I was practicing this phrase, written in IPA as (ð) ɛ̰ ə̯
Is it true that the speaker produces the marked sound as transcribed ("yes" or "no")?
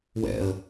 no